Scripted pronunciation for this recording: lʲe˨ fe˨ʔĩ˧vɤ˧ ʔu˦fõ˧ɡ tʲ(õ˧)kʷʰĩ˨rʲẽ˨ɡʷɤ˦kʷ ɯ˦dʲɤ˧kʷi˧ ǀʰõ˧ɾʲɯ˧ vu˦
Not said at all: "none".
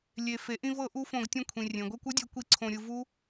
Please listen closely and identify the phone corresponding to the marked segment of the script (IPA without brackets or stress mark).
ũ˧